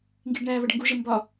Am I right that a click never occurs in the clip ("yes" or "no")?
yes